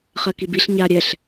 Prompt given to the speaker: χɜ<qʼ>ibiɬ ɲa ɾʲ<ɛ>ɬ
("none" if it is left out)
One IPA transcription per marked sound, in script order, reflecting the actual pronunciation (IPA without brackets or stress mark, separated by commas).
k, ɛ